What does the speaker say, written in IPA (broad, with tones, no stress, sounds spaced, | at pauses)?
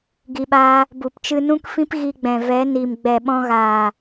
ɡ i˧ ɓ aː˦ | b u˨ p t͡ʃ ɨ˧ n ũ˦ k f ĩ˦ p ɣ i˧ ɡ͡b ɛ̃˨ v ɛ˨˦ n i˨ m ɡ͡b ɛ˨ ɓ ɔ̃˧ ɣ aː˨